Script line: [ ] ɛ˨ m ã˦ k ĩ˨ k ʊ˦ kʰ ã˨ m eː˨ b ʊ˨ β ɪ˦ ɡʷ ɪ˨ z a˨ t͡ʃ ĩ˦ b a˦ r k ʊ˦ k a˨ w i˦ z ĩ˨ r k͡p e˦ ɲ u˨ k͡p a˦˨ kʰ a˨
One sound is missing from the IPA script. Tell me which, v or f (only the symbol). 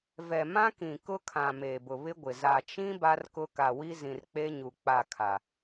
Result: v